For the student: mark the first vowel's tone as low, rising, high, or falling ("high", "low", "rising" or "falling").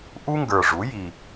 high